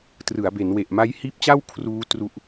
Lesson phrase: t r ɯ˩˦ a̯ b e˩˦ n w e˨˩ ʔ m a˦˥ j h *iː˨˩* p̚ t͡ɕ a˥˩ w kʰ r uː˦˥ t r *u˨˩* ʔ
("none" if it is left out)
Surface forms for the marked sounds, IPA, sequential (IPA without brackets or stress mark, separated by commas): iː˦˥, u˦˥